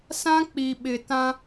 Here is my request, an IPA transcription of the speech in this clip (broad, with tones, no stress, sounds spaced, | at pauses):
s ã˦ k͡p i˨ ɓ ɪ˨ t ã˦